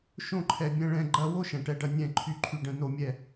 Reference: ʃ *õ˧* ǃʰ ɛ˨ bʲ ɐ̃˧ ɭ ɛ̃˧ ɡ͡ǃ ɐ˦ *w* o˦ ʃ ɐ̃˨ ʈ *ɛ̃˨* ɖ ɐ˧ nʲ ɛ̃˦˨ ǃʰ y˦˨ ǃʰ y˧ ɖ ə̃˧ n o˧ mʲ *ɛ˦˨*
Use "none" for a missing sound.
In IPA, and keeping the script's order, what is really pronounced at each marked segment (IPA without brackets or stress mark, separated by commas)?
õ˧, w, ɛ˨, ɛ˦˨